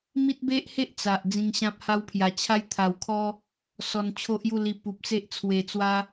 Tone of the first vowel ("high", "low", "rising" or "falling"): high